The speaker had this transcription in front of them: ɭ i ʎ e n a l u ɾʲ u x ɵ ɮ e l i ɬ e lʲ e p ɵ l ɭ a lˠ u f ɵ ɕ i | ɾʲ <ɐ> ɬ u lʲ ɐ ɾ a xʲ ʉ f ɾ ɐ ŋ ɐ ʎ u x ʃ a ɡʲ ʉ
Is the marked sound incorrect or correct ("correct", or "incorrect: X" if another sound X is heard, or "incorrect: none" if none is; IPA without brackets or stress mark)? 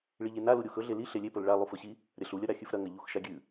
correct